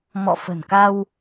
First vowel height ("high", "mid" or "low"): mid